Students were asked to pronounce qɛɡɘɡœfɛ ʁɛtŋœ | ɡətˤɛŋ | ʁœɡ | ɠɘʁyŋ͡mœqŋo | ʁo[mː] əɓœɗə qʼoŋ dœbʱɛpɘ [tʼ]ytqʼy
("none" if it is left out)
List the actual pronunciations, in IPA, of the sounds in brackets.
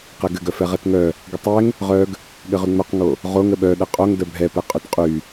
ŋ, qʼ

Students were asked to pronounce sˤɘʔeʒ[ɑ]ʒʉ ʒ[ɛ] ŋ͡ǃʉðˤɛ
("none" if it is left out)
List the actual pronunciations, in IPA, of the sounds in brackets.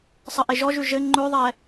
ɔ, ɘ

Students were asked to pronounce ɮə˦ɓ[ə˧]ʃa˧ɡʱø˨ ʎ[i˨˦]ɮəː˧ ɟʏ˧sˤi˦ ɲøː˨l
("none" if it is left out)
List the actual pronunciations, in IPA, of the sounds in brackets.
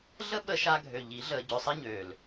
ə˧, i˨˦

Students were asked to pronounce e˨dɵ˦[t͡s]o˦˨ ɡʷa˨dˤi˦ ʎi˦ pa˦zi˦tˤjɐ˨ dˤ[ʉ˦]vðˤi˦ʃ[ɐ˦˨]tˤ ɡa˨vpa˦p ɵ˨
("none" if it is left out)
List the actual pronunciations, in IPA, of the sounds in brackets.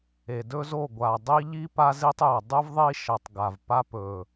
z, ʉ˦, ɐ˨

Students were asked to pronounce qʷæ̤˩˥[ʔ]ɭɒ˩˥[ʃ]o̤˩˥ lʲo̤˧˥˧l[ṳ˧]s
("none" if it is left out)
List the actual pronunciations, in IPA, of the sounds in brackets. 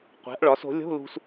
ʔ, s, ṳ˧

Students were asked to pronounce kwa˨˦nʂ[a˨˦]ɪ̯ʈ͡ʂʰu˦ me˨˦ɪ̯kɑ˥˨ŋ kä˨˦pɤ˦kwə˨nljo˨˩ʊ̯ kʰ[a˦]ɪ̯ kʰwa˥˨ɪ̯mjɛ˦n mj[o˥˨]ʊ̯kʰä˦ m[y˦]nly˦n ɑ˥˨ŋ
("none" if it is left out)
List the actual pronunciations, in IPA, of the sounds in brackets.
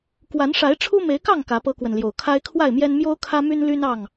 a˨˦, a˦, o˦, y˦

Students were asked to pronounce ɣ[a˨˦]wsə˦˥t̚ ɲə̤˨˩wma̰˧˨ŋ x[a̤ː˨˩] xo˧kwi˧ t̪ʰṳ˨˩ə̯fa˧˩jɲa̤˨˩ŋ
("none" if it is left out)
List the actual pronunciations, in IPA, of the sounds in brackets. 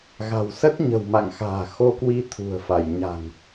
a̤˨˩, a̤ː˨˩

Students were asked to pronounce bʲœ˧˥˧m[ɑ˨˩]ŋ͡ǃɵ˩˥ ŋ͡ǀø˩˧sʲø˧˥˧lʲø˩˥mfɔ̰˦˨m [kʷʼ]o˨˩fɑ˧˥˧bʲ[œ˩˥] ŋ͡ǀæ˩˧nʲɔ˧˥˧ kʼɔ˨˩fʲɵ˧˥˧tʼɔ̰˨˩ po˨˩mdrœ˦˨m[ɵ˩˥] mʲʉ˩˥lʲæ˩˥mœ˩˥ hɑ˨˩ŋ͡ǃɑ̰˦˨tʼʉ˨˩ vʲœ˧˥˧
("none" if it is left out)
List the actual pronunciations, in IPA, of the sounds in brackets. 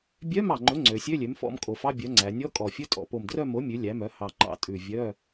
ɑ˨˩, kʼ, œ˩˥, o˩˥

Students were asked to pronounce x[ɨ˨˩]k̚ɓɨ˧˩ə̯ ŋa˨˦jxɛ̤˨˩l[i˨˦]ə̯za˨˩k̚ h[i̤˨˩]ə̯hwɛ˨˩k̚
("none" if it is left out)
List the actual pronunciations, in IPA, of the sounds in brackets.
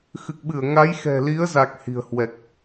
ɨ˨˩, i˨˦, i̤˨˩

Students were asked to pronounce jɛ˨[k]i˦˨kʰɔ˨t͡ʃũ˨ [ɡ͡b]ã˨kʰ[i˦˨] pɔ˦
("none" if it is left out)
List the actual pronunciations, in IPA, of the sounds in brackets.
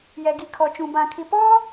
ɡ, b, i˨

